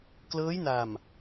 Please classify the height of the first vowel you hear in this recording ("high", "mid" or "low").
mid